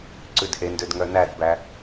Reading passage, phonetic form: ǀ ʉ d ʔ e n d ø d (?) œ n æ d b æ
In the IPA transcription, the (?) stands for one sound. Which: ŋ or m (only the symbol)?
ŋ